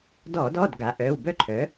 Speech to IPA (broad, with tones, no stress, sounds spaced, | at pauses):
d ɔː˧˩˧ d ɔː˩˧˩ d ɡ a˩˥ ʔ œː˩˧˩ w b œ˥ ǃʰ œ˩˥